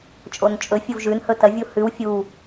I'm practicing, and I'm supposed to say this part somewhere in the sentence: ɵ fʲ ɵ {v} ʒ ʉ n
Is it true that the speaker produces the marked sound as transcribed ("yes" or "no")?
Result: yes